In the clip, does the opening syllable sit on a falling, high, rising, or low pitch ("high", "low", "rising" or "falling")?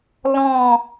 falling